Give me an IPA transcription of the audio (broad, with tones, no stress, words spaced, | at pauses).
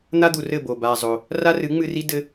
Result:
n̪a˦d̪u˨ rɘ˦˨bo˨ ba˧zˤo˧ | ra˦rɨ˨˦ŋ͡mɨ˧ri˦ dɘ˦